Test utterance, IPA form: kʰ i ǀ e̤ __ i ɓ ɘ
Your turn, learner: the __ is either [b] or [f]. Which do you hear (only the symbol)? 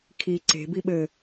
b